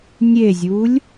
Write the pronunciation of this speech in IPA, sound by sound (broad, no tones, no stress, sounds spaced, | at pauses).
nʲ e zʲ u lʲ